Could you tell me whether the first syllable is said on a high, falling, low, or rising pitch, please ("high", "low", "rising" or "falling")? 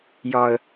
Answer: high